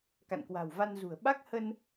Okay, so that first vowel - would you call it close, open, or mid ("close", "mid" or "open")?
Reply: open